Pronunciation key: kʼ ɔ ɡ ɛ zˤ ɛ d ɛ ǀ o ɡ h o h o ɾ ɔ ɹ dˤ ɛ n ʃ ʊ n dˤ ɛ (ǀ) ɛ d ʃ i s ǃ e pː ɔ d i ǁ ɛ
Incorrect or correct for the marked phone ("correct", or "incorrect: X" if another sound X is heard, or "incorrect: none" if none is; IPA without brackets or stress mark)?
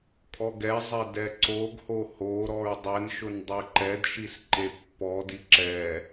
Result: incorrect: ǃ